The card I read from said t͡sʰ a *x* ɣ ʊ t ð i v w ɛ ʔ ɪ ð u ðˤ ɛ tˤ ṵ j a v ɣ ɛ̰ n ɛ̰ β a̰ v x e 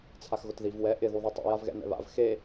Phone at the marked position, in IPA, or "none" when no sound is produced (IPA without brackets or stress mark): x